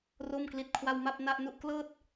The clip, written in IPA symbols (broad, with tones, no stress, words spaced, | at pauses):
ro˥˩mkli˦˥t̚kʰwa˥˩w ma˥˩p̚na˥˩ʔnu˥˩ʔ klɤː˥˩t̚